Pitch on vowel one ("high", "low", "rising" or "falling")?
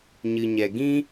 low